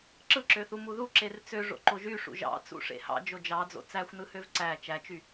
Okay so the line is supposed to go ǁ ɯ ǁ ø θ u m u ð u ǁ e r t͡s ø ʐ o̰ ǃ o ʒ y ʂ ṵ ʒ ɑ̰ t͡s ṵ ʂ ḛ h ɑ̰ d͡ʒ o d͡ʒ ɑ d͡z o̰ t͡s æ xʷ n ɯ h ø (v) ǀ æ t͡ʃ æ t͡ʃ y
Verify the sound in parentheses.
correct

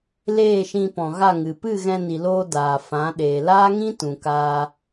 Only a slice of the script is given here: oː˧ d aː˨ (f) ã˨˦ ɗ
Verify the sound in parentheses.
correct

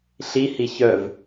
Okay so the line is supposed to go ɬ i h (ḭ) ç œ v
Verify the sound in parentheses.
incorrect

